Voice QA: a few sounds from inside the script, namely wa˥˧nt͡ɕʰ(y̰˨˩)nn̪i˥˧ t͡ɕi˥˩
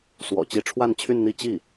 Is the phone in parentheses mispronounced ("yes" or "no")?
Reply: yes